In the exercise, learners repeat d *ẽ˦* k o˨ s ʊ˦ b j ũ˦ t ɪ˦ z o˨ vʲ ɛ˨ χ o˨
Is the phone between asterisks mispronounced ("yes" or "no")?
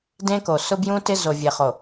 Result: no